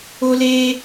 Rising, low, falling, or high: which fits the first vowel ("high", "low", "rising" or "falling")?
high